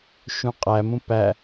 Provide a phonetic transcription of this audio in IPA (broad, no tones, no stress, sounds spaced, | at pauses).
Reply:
ʃ ũ qʼ æ m ũ p æ